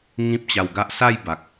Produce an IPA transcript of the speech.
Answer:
ŋ ĩ˦ p̚ t͡ɕ a˧ w ɡ a˦ ʔ s a˥˧ j b a˨ k̚

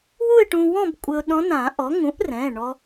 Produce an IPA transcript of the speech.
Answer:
w u˥˧ ɪ̯ ʈ ũ˧ w ɔ̃˥˧ b kʷʼ ɘ˧ ʊ̯ ɗ ɔ̃˧˥ n ã˨˩˦ ʔ ɔ˩˥ ŋ ũ˩˥ ʔ r ɛ̃˩˧˩ ɳ ɔ˧

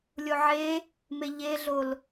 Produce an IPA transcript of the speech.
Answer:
lʲ o ʕ e | m e ʎ e ɮ o l

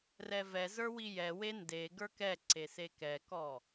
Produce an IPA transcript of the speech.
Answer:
r ɛ v ɛ z ə˞ w i j ɛ w e n d e ɡ ə˞ k ɛ ǀ e s e k ɛ k ɔ

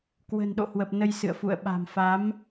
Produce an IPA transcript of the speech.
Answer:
k w ə̤ː˨˩ n ɗ o̰˧˨ h w ə˨˩ p̚ n ə˧ j s ɨ̰˧˨ ə̯ f ṵ˧˨ ə̯ ɓ a̤˨˩ m f a˨˦ m

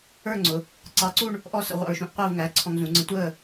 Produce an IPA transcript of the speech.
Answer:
ə˞˥˧ ŋ͡ǀ ʊ˩˧ | ǀ ɑ˧ ǀ u˥˧ ɳ | ʔ ɔ˥˧ s ə̰˧ ʁʷ ɑ̰˧ ɹ ʃ ũ˧ ʔ qʷ əː˥˧ v ŋ æ˩˧˩ ǀʰ ɔ̃˧ ŋ z ũ˩˧ ŋ͡ǀ ə̃˧ tʷ əː˥˧

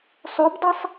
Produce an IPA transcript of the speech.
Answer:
sˤ o b dˤ i sˤ

